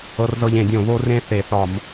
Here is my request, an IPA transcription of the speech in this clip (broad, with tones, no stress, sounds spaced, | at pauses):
ɤ˧ r z ɤ˧ ʎ ẽ˧˩˧ dʲ õ˧˩˧ β o˧ r ẽ˧ θ e˧˩˧ θ ɒ˧˩˧ m